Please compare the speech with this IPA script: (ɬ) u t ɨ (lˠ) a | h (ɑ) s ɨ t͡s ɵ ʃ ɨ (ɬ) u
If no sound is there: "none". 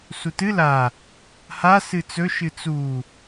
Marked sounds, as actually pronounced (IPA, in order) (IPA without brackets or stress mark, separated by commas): s, l, a, t͡s